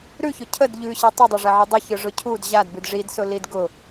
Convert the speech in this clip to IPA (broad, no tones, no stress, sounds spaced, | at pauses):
ɾ ʉ ç ʊ cʰ ə d ʎ ʉ ɕ i tˤ i dˤ o ʐ ɛ ʕ i dˤ ə ç ɯ ʐ ʊ cʰ u d ʑ a d b ʉ d ʐ i d s ʊ l i d ɡ ʊ